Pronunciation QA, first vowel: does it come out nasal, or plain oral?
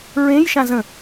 nasal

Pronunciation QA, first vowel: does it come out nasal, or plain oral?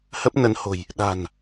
oral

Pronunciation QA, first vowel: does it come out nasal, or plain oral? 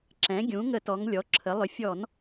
nasal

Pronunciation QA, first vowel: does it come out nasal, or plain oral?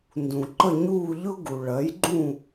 nasal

